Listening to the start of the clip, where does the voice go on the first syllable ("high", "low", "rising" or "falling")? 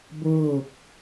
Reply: falling